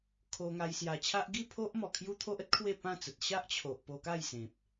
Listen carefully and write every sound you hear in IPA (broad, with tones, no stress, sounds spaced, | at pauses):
kʰ o˧ ŋ a˧ j s j a˨˩ t͡ɕʰ a˦ ʔ ɡ i˥˧ pʰ o˦ ʔ m ɔ˨˩ kʰ j u˦ t̪ʰ o˦ ʔ ə˦ t̚ kʰ w e˥˧ p ã˥˧ t͡s ə˨ t̚ ɕ a˦ ʔ t͡ɕʰ o˨ ʔ p o˧ k a˥˧ j s ẽ˨ p̚